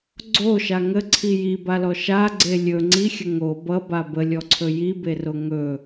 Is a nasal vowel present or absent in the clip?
absent